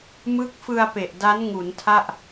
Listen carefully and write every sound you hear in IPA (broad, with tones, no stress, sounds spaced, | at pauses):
m ɯ˦˥ k̚ f ɯ˧ a̯ p e˨˩ ʔ d a˦˥ n ŋ u˩˦ n tʰ a˥˩ ʔ